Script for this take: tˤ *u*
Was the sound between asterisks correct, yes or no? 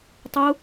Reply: yes